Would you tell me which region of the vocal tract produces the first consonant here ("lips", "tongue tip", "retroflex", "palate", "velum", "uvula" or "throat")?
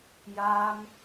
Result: palate